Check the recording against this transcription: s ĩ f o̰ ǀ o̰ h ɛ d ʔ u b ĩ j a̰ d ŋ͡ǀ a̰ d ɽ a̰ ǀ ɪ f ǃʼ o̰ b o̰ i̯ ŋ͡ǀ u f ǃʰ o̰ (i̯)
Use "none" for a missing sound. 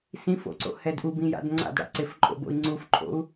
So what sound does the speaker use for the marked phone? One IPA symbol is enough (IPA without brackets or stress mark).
u̯